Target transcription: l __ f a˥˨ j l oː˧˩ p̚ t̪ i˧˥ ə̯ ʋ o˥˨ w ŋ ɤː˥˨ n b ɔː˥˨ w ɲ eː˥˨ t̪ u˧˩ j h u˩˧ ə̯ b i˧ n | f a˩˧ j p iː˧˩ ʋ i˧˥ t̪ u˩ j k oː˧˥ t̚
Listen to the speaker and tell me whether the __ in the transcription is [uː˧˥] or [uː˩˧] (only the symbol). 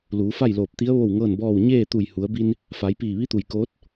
uː˩˧